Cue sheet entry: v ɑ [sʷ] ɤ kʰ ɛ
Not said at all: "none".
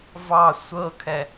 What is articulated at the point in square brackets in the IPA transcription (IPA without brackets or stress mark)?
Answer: sʷ